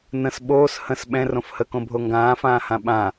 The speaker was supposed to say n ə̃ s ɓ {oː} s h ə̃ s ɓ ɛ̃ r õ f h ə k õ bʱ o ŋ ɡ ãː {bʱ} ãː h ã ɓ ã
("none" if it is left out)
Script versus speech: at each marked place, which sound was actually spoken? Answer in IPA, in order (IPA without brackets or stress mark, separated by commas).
oː, f